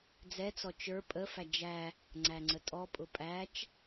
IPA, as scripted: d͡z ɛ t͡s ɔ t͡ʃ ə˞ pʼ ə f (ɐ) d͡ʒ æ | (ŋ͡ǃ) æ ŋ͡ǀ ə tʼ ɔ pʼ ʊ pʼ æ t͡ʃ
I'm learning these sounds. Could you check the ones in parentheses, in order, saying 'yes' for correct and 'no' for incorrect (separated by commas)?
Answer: no, no